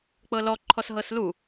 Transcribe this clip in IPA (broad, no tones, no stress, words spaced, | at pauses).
k͡pɤlɔ ǃʰɔsɦɤslu